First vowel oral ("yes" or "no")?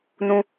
no